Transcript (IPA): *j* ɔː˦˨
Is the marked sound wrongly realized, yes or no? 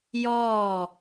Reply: no